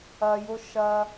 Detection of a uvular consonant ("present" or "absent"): absent